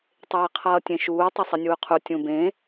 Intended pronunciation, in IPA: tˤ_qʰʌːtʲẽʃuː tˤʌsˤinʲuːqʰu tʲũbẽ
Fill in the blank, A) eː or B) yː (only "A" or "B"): A